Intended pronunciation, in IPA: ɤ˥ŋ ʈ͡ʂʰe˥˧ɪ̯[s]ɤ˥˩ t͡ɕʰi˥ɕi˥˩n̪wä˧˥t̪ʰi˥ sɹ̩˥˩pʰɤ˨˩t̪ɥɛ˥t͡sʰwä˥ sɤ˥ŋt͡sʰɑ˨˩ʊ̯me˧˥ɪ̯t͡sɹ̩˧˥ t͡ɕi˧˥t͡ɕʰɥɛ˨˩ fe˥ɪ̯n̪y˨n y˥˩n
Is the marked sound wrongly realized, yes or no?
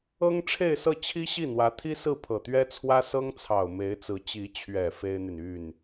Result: no